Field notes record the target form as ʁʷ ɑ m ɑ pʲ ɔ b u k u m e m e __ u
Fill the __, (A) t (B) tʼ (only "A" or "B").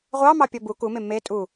B